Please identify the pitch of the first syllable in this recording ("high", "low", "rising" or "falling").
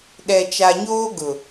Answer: low